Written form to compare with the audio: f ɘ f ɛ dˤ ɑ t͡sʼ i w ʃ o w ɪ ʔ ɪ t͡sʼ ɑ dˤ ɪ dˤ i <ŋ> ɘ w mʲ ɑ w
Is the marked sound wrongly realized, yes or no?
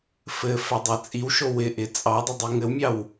no